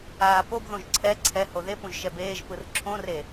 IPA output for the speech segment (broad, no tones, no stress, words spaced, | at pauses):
aː pobðõʒ ǀʰɛ ǀʰɛ hoðepũʒ ʃɛbeːʒpɯr ǁʰõre